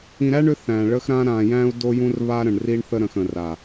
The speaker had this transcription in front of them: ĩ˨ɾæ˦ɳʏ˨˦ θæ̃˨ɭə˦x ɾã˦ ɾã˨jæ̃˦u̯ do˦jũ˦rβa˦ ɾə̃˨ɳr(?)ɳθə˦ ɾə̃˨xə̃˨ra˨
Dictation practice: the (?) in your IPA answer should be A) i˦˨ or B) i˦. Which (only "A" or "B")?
B